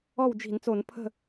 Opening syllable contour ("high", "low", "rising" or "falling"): falling